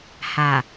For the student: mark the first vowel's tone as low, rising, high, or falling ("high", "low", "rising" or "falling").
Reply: low